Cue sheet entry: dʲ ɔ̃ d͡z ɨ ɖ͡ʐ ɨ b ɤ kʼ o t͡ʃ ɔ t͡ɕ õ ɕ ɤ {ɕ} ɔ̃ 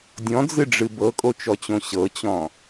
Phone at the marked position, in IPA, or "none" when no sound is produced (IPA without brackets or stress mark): t͡ɕ